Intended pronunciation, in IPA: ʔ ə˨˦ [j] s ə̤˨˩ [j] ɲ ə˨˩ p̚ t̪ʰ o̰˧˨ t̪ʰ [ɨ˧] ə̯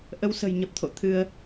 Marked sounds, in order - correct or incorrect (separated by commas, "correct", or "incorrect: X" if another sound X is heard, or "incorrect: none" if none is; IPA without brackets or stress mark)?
incorrect: w, correct, correct